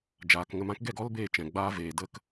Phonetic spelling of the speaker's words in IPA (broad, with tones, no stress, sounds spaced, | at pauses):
d͡ʒ aː˨ k ŋ ə˧ m ã˦ k ɡ ɛ˦˨ ɡ ɔ˦ l b eː˧ t͡ʃ ɛ̃˨ ɡ͡b aː˦ v eː˨ d ə˧ k